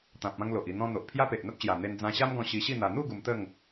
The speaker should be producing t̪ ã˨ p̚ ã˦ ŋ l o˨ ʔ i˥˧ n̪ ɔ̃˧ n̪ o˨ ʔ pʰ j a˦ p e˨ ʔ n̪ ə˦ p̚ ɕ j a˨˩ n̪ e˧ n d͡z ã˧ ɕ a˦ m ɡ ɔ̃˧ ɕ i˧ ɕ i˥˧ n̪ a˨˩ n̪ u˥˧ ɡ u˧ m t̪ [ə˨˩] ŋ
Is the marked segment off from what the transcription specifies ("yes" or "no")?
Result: yes